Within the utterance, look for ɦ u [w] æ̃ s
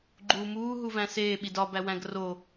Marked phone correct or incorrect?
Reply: incorrect